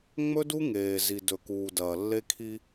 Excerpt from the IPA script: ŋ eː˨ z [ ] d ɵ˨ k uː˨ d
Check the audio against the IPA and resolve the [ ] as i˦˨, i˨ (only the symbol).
i˨